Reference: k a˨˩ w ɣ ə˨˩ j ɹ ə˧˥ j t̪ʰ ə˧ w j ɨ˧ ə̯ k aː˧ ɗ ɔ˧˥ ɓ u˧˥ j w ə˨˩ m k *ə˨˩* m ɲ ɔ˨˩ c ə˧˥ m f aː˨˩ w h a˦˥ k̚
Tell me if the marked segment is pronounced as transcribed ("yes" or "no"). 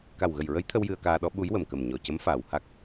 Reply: yes